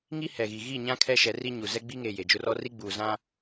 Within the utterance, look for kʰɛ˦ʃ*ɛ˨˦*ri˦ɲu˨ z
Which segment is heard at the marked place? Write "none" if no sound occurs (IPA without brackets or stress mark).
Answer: ɛ˨˦